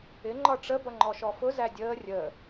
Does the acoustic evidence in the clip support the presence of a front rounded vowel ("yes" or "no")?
no